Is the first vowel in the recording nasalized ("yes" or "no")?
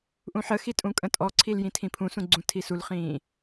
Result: yes